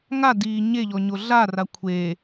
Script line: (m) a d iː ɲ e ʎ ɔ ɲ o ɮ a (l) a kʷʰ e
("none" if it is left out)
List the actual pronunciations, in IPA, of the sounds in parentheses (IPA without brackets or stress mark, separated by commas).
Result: ŋ, r